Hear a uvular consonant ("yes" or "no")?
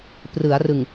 no